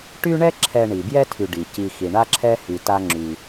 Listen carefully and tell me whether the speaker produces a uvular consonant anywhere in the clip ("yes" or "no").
no